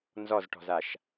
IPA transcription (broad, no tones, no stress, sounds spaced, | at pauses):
n z ɔ z ʈ ɔ̤ z a ʃ